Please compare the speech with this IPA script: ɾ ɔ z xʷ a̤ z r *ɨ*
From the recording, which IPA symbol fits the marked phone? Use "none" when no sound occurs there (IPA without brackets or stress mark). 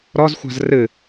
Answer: ɨ